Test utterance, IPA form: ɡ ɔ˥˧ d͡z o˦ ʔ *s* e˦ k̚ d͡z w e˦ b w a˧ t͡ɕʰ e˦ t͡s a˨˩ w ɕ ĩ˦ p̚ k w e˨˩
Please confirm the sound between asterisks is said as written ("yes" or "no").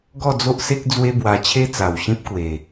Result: yes